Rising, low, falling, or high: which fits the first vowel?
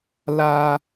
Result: high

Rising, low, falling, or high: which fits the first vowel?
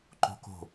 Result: high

